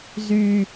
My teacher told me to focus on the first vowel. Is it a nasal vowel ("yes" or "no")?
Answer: no